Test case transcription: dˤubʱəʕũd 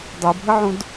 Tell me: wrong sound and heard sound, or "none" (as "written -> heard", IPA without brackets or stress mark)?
none